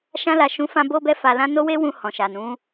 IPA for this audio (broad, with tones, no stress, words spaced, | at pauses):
ʃã˧la˨ʃũ˨˦fã˧ bo˧bɛ˧fa˨lã˧ no˦we˦wũ˧ hɔ̃˨ʃa˨nũ˨˦